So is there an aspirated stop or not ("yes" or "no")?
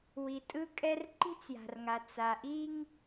no